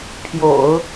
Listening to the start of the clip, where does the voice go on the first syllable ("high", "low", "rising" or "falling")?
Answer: low